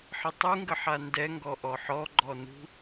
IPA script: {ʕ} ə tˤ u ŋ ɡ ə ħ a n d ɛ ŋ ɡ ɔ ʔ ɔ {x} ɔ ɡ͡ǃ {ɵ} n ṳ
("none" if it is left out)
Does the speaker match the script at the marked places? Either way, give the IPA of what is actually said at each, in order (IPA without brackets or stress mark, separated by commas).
ħ, ħ, ɔ